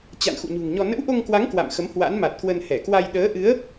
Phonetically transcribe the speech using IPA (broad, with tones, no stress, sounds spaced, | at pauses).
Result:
t͡ɕ a̰˧˨ n x ṵ˧˨ ɲ ṳ˨˩ ŋ ɲ ɔ˧ n ə̰˧˥ w ʔ o˧ ŋ k w a˨˦ ŋ k w a̰˧˨ m x ə˨˦ m h w a̰˧˥ n m a˨˩ t̚ k w ə˧ n h ɛ˧˩ k w a˧ j ɗ əː˨˦ ʔ ɨ˨˦ ə̯